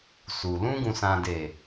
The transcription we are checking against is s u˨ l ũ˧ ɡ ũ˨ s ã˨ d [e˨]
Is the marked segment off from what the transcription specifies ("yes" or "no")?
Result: no